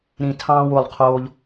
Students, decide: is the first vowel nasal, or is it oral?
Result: nasal